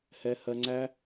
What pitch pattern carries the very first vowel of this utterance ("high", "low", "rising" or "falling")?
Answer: high